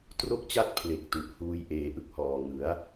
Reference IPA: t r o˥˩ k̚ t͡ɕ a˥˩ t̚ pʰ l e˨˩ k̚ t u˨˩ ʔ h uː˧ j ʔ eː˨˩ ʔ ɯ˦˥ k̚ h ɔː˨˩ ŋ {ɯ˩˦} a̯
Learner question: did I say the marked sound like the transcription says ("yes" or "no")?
yes